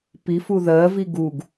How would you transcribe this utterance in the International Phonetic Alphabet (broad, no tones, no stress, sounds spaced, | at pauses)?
p i f u ð ɜ v i ɡ u ɡ